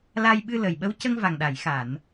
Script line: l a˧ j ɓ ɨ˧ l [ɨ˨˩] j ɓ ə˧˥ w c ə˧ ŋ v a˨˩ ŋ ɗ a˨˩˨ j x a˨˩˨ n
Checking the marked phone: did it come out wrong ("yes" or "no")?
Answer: yes